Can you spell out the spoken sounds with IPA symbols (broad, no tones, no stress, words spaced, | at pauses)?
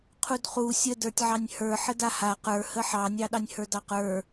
qʰudχu sʲədə˞tʲʕɑnʲ hə˞ ħədaha qə˞ həħɑnʲɑ ɗɑnʲhə˞dɑqə˞